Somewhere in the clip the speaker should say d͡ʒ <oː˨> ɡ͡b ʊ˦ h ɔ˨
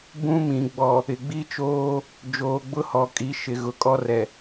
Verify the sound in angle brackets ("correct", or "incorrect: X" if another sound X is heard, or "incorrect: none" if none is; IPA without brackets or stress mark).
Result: correct